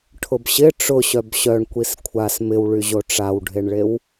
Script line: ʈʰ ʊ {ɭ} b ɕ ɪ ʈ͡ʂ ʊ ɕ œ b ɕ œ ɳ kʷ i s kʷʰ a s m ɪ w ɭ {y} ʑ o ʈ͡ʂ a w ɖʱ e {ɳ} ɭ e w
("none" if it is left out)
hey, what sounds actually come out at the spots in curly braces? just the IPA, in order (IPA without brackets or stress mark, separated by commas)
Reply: none, y, ɳ